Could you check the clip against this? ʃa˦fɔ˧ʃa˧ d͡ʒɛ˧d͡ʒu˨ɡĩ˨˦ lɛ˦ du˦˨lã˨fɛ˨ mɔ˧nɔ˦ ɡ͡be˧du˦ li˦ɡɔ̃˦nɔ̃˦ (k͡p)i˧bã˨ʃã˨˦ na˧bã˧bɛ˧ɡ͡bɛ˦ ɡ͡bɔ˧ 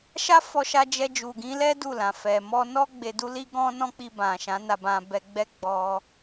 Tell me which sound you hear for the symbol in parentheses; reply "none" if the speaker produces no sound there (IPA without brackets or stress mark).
k͡p